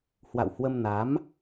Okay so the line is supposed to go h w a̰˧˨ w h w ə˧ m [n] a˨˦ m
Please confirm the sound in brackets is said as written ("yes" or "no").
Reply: yes